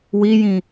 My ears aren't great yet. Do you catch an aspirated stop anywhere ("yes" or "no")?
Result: no